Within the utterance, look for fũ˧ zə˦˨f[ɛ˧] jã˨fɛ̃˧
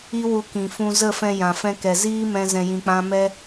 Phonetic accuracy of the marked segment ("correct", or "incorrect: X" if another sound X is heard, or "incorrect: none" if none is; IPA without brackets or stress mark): incorrect: ɛ̃˧